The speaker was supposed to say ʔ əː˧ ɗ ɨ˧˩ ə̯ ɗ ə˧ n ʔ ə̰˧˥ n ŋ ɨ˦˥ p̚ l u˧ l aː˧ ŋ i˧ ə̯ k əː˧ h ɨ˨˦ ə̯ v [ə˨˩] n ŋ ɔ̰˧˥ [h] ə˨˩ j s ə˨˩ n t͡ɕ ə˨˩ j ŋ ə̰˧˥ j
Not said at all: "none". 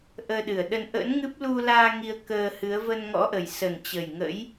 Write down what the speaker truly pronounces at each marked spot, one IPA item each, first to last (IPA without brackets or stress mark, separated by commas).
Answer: ə˧, ʔ